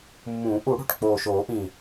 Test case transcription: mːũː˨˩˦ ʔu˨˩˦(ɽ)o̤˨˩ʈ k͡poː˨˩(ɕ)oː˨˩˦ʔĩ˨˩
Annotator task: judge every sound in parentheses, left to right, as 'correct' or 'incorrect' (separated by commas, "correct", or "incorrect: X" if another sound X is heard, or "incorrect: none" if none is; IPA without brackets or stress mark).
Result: correct, incorrect: ʃ